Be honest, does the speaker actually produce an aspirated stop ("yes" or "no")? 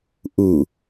no